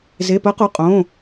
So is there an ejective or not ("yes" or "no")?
yes